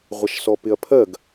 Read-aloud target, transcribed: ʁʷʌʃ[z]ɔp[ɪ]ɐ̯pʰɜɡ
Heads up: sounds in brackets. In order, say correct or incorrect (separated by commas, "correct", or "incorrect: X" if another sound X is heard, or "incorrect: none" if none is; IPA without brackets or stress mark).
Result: incorrect: s, correct